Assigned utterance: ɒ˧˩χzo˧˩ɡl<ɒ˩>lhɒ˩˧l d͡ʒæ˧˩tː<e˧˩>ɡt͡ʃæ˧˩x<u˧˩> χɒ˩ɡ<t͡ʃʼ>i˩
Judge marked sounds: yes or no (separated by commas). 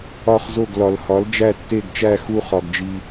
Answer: yes, yes, yes, no